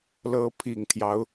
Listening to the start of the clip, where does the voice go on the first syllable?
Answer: rising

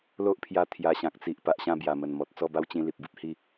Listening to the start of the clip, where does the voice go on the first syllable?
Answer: high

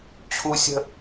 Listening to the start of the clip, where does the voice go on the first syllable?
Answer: high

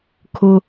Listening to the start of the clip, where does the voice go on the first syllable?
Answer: high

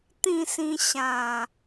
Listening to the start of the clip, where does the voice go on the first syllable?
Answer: falling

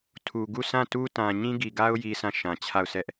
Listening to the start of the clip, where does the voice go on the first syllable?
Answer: low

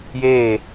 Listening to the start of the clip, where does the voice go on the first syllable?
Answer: falling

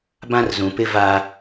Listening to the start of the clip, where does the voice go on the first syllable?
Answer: high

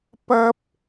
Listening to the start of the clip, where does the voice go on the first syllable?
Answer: high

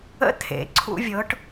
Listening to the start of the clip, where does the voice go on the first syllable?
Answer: rising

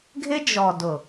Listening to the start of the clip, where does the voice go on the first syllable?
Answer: high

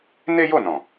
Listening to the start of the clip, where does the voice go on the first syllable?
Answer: high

